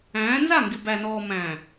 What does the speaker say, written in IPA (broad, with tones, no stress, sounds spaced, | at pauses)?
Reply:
æ̃ː˨˦ n z a˦˨ ŋ ɡ ɪ˨ b æ˨ n ɔː˨ m æ̃˨